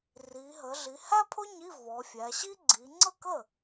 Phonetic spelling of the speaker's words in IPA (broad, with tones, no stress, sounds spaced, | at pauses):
r i˩˧ ɦ ə˩˧ ɮ i˩˧ h æ˥ pʰ ʊ˥ ɲ i˧˥˧ v ɔ˩˧ fʲ æ˩˧ ɕ i˥ ɡ͡ǀ i˩˧ ŋ͡ǀ ə˥˩ k ə˥˩